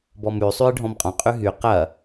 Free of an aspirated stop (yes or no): yes